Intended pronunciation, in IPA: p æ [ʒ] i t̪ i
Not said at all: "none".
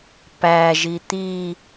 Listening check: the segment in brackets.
ʒ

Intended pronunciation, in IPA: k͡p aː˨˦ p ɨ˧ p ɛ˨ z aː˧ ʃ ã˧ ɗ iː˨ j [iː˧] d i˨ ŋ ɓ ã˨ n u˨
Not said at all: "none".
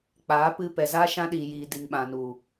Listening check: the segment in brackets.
iː˨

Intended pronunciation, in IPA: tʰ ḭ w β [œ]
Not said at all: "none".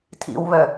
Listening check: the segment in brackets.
œ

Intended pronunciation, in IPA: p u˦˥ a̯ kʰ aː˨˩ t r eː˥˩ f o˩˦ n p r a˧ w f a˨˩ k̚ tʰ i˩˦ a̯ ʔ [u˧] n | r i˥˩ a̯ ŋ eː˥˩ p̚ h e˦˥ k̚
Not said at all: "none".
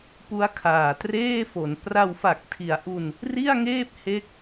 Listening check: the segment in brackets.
u˧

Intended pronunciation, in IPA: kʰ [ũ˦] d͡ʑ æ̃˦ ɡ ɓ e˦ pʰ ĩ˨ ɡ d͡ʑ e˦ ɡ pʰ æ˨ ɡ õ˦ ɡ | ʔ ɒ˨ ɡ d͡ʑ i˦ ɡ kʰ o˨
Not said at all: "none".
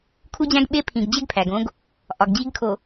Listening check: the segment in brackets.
u˦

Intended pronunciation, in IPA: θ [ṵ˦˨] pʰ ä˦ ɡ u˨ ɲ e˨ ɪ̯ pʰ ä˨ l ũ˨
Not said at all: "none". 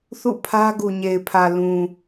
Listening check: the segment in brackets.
ṵ˦˨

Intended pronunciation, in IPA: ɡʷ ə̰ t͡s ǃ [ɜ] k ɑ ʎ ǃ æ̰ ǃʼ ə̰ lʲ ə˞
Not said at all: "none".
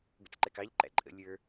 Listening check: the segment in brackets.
ɛ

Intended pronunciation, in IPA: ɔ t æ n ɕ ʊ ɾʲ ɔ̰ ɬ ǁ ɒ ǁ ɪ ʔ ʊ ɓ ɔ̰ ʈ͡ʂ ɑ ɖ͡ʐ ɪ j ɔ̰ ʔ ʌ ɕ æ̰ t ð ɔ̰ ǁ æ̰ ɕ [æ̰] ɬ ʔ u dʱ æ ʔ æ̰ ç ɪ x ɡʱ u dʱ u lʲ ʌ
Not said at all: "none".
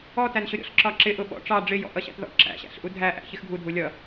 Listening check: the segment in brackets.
æ̰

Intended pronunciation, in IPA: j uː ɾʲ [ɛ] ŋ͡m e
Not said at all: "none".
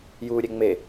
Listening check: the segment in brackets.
ɛ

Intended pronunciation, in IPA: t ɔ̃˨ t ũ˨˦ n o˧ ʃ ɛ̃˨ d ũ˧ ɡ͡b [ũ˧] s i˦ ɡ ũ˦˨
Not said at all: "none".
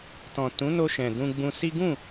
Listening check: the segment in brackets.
ũ˧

